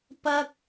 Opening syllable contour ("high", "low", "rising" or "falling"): high